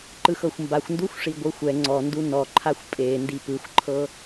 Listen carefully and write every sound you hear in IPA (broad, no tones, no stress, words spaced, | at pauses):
ǃɯxɤxʷmbaxʷnduxʷ ʂiɡʷɯxʷɛ ŋ͡ǀɔndu nɔǃʰaxʷ pʼe ndipɯxʷǃʰɤ